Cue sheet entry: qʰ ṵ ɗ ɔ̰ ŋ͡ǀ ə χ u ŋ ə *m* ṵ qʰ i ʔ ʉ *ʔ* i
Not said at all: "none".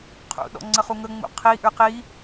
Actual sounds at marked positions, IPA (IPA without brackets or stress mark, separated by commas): ŋ͡m, q